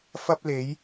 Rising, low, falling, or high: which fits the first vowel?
high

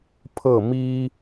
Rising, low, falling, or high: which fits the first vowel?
falling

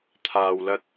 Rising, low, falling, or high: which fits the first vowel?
low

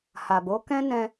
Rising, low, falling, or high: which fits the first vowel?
low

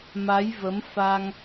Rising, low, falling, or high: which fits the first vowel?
rising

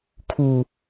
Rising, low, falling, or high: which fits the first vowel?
low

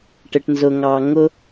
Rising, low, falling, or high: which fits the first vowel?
low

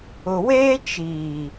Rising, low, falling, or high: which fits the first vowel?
low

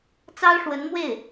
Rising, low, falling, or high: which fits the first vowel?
high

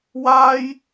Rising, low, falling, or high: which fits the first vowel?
high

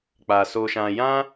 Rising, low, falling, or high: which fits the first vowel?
low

